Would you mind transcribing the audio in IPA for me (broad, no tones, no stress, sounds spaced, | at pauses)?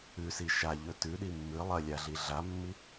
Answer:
ʉ s i ʃ a ʎ ɵ t ʉ ɗ i mː ɨ lˠ ɐ lʲ a ɮ i ɮ a mː i